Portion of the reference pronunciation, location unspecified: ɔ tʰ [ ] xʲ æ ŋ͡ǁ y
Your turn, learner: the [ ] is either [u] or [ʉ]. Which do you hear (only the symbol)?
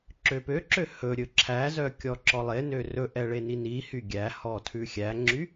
ʉ